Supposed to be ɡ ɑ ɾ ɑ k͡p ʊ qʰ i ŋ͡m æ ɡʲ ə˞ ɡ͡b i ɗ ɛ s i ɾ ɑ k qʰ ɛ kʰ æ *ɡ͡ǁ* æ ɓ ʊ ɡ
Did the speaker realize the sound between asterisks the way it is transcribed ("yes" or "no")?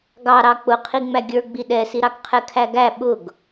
no